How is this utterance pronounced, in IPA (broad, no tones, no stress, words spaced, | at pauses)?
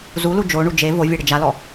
zulu d͡ʒoɳu d͡ʒe vovʲe ɽɪd͡ʒalɔ